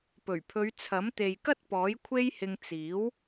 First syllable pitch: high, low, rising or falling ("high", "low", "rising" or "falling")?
low